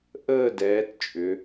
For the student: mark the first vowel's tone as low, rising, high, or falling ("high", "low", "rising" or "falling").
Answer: falling